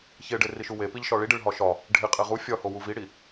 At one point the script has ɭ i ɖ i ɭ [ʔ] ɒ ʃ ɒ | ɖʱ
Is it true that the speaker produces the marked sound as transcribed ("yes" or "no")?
no